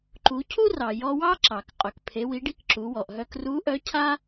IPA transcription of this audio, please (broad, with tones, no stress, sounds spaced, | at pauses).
ǃ u˩˧ cʰ u˥ r ɑ˩ j ɔ˧ w ɑ˥ ǁ ɑ˩ k qʼ œ˩ k pʰ e˩˧ w i˩˧ ɖ i˧˥ k ǁ u˩˧ w ɔ˩ ʔ ɦ œ˧ k r u˧˥ ʔ œ˧˥ cʰ a˥